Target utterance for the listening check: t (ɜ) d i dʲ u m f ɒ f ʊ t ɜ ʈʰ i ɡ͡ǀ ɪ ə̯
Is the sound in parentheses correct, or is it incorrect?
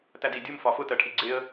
incorrect